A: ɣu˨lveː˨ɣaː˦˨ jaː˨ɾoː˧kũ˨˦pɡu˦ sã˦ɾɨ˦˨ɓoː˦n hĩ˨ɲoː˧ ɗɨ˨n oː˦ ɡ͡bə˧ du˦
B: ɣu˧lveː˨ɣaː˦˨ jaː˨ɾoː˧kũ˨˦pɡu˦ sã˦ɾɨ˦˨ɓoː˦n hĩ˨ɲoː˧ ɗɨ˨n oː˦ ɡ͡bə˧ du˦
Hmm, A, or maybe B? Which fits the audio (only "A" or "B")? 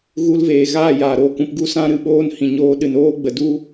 B